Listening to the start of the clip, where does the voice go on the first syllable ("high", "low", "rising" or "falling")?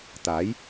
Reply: rising